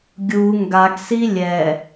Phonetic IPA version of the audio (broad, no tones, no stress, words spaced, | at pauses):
ɡʲu ŋɡaɡsi lʲɛ